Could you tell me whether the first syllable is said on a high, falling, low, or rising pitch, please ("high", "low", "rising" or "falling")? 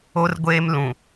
high